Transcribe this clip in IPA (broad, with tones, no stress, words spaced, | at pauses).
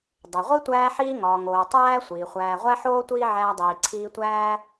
dˤe˩ʁʷi˥ tʷæː˦ħiː˦ŋɒː˩ŋoː˩ tˤæː˥ sʷiː˩χʷæː˨ʁʷæ˥ħoː˥ tʷiː˥ʕæː˦dˤiː˨ ǀʰiː˦tʷæː˥